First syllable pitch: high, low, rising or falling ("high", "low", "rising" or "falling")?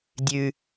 high